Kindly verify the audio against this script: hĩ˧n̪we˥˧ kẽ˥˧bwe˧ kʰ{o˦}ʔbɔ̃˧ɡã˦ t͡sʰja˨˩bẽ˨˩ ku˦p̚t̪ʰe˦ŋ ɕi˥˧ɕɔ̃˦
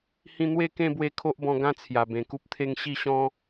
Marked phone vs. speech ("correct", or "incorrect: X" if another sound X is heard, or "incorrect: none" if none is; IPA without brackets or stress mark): correct